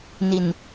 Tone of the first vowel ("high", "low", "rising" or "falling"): low